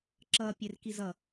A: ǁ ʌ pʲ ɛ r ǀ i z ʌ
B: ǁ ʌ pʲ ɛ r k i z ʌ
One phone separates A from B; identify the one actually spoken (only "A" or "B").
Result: B